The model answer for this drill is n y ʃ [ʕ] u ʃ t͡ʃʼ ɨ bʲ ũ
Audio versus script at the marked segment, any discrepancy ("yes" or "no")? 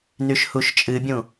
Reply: yes